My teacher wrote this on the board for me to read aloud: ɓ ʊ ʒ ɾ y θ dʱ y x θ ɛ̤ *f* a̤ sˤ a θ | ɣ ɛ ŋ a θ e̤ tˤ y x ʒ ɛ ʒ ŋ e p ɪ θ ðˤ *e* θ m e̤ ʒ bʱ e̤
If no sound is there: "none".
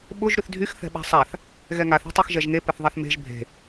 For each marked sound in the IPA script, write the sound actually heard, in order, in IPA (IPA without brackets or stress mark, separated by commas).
ɓ, ɛ